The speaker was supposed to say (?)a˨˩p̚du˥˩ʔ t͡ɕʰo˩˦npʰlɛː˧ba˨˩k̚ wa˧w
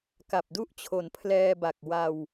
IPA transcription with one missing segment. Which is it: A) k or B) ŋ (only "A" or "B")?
A